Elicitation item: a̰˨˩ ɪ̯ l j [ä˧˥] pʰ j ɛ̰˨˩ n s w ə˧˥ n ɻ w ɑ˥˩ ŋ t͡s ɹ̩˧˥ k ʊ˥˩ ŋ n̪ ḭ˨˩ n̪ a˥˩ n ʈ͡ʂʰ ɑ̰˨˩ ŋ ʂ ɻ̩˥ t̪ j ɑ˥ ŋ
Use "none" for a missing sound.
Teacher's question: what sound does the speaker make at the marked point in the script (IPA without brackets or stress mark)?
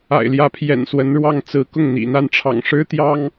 ä˧˥